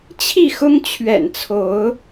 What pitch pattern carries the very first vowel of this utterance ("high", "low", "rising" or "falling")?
falling